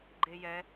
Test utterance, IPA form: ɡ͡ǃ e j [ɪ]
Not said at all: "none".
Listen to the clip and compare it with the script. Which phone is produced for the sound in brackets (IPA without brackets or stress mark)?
ɛ